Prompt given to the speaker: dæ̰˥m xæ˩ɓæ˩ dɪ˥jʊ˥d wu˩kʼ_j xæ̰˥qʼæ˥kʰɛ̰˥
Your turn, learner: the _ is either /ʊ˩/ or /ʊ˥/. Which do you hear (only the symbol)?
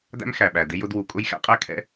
ʊ˥